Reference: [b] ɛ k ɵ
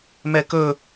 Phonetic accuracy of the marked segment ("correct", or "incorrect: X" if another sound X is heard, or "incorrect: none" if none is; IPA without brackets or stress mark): incorrect: m